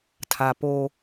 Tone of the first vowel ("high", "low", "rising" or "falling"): low